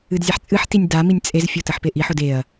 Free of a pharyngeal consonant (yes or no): no